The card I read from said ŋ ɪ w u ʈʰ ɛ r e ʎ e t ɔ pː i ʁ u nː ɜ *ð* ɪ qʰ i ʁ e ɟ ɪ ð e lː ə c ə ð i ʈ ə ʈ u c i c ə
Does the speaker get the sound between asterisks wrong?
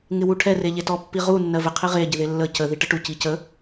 yes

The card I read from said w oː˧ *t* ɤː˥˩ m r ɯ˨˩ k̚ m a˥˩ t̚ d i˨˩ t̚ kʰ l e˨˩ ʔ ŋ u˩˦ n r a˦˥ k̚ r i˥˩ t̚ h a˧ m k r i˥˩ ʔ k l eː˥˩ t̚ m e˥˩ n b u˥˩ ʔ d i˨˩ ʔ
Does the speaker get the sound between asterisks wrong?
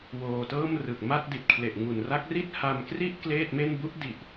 no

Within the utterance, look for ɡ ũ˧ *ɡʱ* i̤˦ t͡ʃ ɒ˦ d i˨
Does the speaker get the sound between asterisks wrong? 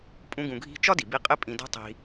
no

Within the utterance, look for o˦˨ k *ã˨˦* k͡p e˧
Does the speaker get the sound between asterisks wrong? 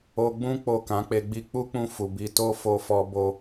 no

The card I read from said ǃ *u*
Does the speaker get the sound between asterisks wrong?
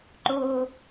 yes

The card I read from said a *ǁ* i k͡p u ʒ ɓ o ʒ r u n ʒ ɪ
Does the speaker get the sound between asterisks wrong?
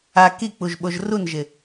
yes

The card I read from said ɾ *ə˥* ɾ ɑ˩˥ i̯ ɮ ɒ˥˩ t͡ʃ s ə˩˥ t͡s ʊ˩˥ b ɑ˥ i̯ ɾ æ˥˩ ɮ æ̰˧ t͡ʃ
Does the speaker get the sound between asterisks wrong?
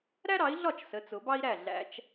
yes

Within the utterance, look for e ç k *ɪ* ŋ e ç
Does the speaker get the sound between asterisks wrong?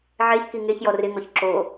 yes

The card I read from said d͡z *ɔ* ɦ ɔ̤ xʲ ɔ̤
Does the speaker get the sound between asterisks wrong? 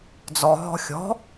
no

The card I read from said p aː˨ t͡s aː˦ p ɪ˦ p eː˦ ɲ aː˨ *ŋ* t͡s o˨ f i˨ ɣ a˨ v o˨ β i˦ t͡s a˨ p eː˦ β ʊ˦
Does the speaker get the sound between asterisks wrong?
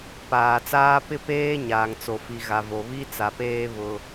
no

